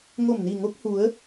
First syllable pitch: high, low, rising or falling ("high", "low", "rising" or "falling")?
low